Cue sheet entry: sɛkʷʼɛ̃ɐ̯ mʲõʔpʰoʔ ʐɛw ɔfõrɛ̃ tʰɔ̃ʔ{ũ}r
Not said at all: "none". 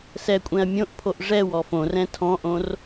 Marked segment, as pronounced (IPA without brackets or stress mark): õ